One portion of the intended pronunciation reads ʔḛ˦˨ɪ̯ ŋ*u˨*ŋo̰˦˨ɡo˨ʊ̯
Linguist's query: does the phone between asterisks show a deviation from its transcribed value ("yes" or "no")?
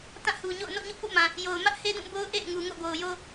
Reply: no